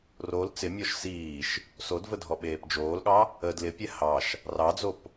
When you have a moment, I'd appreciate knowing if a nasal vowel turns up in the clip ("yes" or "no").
no